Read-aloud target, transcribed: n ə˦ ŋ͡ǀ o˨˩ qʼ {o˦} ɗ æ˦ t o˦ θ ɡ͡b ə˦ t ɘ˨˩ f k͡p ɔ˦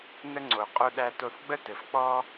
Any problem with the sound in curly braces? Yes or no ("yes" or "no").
no